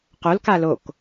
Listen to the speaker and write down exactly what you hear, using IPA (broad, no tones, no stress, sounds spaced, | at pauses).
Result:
q o l k a l o k